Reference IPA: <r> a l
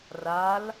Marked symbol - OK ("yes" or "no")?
yes